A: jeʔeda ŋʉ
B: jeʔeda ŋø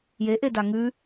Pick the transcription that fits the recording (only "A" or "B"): A